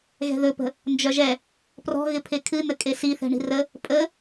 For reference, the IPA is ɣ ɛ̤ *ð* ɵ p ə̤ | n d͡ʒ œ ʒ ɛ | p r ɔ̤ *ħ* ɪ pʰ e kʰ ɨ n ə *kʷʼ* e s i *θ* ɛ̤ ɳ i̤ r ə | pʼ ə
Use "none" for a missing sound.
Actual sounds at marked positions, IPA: ð, ɣ, kʼ, θ

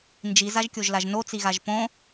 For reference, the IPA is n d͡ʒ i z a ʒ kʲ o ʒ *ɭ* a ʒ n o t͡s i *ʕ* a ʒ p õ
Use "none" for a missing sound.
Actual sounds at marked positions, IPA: l, ɣ

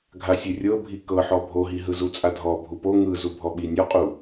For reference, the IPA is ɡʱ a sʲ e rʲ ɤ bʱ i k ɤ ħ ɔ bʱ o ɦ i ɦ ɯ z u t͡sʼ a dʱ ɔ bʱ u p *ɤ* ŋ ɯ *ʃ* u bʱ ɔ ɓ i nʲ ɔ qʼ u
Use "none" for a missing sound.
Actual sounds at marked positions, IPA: o, z

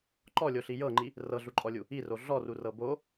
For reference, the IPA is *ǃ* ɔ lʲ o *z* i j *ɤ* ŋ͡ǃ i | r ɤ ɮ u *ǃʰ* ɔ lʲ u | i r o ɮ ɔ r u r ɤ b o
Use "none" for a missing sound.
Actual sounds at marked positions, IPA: ǃ, ɬ, ɤ, ǃʼ

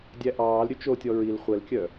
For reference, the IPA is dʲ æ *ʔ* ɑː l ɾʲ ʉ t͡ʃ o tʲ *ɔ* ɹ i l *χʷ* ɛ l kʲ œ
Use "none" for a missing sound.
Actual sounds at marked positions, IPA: ʔ, ɔ, χʷ

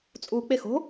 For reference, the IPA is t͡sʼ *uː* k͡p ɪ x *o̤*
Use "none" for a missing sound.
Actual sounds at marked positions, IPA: uː, o̤

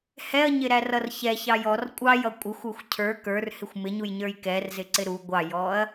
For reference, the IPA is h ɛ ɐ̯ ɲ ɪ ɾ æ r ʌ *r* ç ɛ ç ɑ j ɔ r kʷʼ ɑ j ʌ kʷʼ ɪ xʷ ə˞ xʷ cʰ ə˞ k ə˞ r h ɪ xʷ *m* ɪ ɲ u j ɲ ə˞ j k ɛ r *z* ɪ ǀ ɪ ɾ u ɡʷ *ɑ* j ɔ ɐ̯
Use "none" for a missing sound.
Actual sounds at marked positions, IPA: r, m, z, ɑ

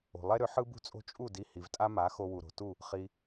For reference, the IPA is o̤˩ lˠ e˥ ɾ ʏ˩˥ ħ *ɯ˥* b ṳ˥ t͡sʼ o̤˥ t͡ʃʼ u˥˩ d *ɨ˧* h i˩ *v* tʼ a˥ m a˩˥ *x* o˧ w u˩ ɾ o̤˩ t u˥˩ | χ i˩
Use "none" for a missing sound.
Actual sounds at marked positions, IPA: ɯ˥, i˧, v, x

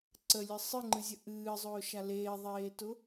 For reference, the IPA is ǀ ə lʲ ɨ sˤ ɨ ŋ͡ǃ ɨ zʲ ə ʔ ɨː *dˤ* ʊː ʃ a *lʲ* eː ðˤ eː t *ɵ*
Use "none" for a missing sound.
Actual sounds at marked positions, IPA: zˤ, l, ʊ

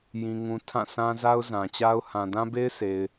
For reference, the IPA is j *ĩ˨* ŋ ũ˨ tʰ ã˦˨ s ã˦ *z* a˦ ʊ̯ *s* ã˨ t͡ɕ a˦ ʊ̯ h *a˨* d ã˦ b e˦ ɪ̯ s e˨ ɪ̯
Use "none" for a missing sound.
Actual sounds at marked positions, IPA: ĩ˨, z, z, ã˨

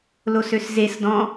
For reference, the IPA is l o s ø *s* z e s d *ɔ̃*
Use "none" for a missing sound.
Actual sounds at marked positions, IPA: s, ɔ̃

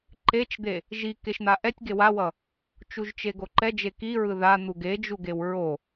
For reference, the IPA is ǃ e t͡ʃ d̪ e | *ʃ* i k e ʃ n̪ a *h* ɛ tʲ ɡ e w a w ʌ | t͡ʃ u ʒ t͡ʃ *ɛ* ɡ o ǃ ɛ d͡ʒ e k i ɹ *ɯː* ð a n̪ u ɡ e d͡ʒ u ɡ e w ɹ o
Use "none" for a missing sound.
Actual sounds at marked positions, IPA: ʒ, ʔ, e, ɯ

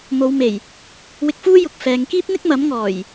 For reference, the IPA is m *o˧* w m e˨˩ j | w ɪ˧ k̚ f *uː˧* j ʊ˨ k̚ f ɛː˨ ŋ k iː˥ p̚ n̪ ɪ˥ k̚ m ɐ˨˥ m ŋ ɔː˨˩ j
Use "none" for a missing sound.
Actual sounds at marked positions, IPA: o˨˧, uː˥

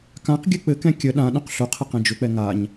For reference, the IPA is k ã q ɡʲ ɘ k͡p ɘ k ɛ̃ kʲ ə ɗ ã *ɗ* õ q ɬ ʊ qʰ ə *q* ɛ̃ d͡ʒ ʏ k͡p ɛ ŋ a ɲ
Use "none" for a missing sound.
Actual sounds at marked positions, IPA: ɗ, q

